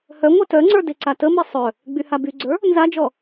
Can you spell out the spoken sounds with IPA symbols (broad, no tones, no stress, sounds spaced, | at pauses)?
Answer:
h œ ŋʷ e t œ ŋ͡ǀ ə˞ d e ǀ a t ə m i sˤ œ | ɡ͡b y h a b y ɡ͡ǀ ə˞ | n z a d͡ʒ ɔ